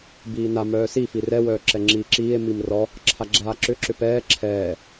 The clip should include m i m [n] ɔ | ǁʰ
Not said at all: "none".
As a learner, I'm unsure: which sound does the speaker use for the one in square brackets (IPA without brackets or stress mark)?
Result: r